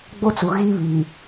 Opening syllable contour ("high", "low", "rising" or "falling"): high